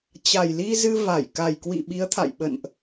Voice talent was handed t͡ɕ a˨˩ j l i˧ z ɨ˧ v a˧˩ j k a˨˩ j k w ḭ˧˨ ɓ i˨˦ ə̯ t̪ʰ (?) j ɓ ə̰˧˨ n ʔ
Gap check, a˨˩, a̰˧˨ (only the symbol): a̰˧˨